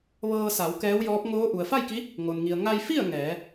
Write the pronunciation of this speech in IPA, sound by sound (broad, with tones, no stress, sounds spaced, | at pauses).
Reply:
ʋ ɤː˧ s a˩˧ w k ɛː˧˥ w j ɔː˧˥ p̚ ŋ oː˧˥ ʔ u˩ ə̯ f a˥˨ j k i˧˥ | ŋ o˩ n ŋ i˩ ə̯ ŋ a˧ j f i˥˨ ə̯ ŋ ɛː˩˧